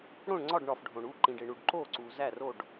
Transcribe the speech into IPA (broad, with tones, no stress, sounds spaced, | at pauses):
ɽ õ˧˩ ɳ ŋ͡ǀ ɒ˧˩ ɖ ɳ ɒ˩ f ɖʱ õ˩ ɳ u˧˩ ǃ ĩ˩ ɖ e˩ ɳ u˩ ɖ ǃ o˧˩ ǀ u˩ z æ˧˩ r o˧˩ ɖ